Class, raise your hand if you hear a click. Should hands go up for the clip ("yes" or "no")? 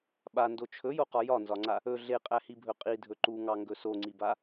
yes